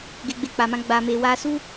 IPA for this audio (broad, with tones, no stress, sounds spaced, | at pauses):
ɡ e˧ ɡ͡b e˧ k͡p a˨ m ã˧ ɡ͡b a˨ m e˨ w a˧ s u˦